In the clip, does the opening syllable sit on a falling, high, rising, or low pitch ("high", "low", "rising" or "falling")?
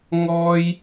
high